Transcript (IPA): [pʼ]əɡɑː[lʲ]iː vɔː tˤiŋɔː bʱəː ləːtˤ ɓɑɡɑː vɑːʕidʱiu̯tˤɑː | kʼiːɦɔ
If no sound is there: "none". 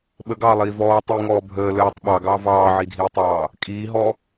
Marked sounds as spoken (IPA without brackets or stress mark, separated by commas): ɓ, lˠ